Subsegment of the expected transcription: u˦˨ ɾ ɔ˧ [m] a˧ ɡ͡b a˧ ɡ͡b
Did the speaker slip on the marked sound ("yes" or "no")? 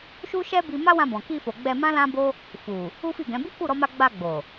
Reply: no